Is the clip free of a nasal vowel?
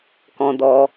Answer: no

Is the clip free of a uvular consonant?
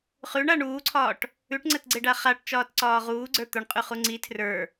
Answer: no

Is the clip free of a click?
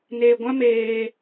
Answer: yes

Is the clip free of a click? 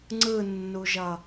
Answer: no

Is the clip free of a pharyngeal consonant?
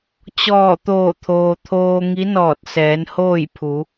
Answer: yes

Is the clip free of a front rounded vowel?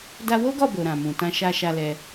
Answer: yes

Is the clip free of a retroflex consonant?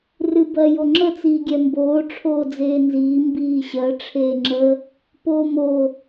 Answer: no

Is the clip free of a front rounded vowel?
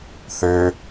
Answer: no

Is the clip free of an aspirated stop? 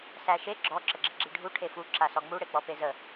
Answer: no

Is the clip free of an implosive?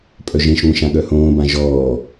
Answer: no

